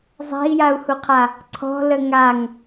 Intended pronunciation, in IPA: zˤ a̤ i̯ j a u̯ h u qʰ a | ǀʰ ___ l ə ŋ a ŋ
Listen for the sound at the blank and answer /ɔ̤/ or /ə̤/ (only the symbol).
ɔ̤